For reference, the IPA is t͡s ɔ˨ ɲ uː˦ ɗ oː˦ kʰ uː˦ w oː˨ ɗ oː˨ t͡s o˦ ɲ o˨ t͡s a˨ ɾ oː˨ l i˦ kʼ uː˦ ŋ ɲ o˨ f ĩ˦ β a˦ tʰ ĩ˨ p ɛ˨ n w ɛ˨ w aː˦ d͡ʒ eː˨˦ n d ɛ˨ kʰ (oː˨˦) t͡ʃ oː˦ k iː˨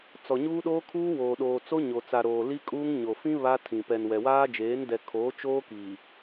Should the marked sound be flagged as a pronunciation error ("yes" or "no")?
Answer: no